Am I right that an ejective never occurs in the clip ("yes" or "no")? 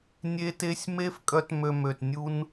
no